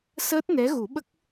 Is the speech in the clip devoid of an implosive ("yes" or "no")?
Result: no